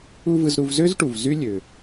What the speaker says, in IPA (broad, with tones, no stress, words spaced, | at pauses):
u˥vɯ˧zɾu˧v zø˥zʈu˩v zy˥lʲø˩